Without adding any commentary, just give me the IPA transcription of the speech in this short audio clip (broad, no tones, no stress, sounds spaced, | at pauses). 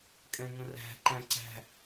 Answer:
kʼ ɛ̃ ŋ ə̃ r æ̤ ǃ æ̃ ǀ æ̤